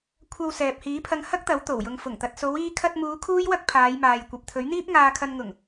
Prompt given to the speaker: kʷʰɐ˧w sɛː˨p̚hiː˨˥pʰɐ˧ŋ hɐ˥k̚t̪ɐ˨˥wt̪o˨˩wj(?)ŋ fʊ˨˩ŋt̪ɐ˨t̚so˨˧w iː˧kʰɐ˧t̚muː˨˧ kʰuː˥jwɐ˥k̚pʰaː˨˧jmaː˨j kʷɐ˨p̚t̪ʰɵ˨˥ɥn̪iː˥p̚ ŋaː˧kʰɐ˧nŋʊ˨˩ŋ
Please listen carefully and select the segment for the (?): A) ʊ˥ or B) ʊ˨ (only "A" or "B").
B